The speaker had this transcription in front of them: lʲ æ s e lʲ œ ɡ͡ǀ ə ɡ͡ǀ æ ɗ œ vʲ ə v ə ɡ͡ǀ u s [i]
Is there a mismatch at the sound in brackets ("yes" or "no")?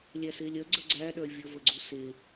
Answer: yes